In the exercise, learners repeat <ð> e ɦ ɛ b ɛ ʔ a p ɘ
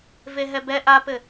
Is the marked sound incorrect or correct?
incorrect